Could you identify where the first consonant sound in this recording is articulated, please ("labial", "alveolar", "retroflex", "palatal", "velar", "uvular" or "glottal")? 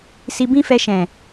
alveolar